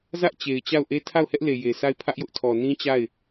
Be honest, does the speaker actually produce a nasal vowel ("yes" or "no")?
yes